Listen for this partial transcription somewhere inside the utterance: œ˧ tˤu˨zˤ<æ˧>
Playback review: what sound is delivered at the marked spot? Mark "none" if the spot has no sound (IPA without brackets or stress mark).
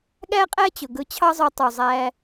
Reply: æ˧